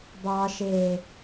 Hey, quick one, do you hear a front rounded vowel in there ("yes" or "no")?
no